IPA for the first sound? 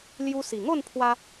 l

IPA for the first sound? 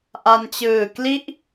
ʔ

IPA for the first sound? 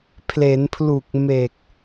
pʰ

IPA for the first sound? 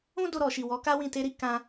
ũ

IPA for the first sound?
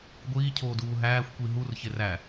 ɡʷ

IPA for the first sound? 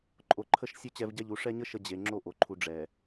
ǃʼ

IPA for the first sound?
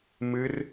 m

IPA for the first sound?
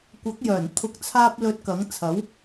kʷ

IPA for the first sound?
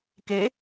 k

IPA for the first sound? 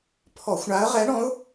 pʰ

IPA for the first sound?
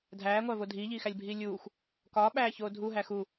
dʱ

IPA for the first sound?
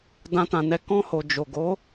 d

